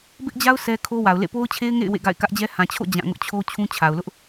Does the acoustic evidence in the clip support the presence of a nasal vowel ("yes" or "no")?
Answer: yes